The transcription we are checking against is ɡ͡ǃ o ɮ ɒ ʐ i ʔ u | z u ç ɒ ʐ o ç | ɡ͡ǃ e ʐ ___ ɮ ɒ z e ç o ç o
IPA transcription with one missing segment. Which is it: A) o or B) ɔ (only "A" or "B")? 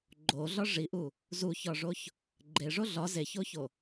A